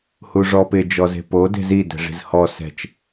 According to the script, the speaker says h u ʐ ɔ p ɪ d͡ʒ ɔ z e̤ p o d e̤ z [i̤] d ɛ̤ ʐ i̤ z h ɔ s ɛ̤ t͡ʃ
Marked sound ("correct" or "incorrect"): incorrect